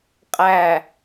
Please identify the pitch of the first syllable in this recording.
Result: low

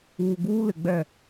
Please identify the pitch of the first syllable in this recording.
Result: low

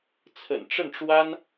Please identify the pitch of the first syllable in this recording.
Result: low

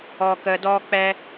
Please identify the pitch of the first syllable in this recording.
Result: low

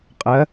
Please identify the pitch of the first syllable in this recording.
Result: rising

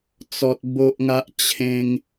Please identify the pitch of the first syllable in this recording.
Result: high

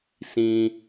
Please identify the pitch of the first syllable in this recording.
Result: low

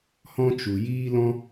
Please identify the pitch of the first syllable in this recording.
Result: high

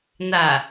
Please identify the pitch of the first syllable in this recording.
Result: low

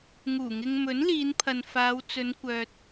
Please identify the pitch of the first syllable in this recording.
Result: low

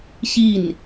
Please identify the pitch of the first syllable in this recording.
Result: falling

